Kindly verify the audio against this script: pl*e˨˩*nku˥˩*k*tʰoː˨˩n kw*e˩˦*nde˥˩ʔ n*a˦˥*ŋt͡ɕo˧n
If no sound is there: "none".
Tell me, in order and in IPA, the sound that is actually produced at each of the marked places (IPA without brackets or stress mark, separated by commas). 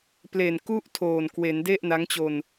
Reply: e˨˩, ʔ, e˩˦, a˦˥